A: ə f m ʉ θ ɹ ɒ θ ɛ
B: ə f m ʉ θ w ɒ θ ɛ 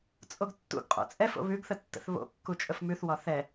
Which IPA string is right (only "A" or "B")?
B